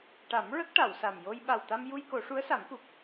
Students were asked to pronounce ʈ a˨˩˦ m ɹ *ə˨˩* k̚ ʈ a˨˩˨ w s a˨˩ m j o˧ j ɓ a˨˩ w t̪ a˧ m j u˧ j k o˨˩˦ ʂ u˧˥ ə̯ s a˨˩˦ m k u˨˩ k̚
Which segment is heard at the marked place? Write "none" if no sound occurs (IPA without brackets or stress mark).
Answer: ə˦˥